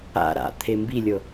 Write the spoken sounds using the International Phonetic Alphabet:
a̰ ɾa̰ t̪ʰembilʲɤ

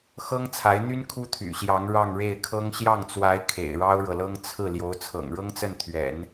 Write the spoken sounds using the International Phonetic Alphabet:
xɤ˥ŋt͡sʰa˧˥ɪ̯n̪y˥n kʰu˥t̪ʰy̰˨˩ɕjɑ˧˥ŋ ɻɑ˥˧ŋɻe˥˩ɪ̯kʰɤ˥ŋ ɕjɑ˥˩ŋt͡swa˧˥ɪ̯ kʰḛ˨˩ɪ̯ɻɑ˥ʊ̯ɻɤ˨lɤ˥ŋ t͡sʰɹ̩˥˩ ljo˧˥ʊ̯t͡sʰɤ̰˨˩ŋɻɤ˥ŋt͡sə˥˩n t̪ʰɥɛ̰˨˩˦n

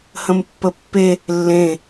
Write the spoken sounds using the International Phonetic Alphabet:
hə̃mpːəpːe | lːẽ

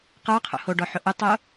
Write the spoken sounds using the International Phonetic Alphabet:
qə˞qʰo̰ hoɖɔħʊ ʔʊtˤo

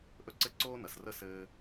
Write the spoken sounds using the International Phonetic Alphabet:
ʔɵ˥ǀɘ˥ ǀoː˥nɐ˩s rə˥sɘː˧

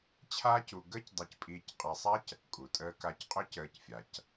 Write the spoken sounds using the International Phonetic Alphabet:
t͡ɕʰaː˥cu˧ ɡəː˥cdˤe˧cpʼiː˧c qʼa˧sˤa˥c | kʼu˩tʼəː˧ka˧c qʼø˥cəː˧cfʲa˩c

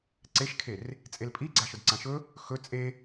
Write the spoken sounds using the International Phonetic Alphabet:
ǀeʃkʰer | t͡sʼelpʼiɡ͡ǀaʃɵd ǀãʃɵ | xɵ t͡sʼe

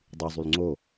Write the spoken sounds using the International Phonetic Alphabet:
dˤyzˤyl ŋ͡ǀo

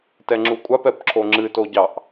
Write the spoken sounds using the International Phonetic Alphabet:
tɛŋ͡ǁukʷʼap ɛpǁʰoŋ͡ǁɨ toɟɑʔ

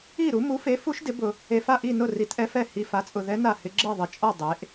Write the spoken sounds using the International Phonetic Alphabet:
i˥˩ ɾu˩˥ mu˩˥fe˩˥fu˧˥ʃ dɪ˩˥bʊ˨ | e˨fa˥˩ ʔi˥˩nʊ˥˩ ri˩˥tʔɛ˧˥fɛ˥˩ hi˨fa˩˥t͡sʼʊ˨ðɛ˧˥ na˥˩hɪ˧˥ ɡ͡ǁe˥˩ðˤɪ˨t͡ʃʼɔ˥˩ dˤe˩˥ʔ

